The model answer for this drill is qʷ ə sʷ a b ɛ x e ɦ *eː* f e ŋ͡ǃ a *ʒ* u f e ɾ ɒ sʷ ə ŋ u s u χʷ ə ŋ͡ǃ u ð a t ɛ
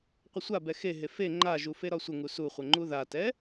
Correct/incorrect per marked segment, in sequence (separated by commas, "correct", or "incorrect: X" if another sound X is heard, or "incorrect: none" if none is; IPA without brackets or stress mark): incorrect: e, correct